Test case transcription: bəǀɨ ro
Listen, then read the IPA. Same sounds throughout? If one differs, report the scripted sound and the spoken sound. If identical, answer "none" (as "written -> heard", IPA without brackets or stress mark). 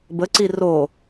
ɨ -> i